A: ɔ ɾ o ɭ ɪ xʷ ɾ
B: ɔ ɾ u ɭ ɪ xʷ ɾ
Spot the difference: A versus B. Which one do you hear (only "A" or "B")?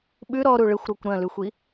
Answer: B